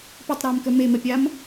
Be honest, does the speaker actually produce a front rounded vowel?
yes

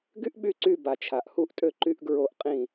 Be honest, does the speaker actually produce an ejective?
yes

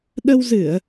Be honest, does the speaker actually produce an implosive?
yes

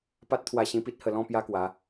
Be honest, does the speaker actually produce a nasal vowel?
yes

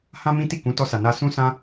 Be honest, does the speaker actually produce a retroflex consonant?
no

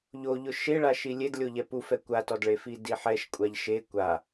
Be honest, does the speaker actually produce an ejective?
yes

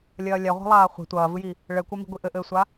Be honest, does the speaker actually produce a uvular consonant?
yes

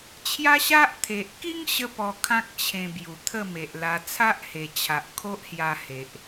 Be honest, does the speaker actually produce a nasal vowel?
yes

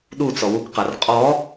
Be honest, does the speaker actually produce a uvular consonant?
yes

